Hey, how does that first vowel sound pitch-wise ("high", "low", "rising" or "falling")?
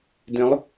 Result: rising